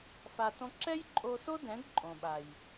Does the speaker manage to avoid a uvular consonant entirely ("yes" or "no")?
yes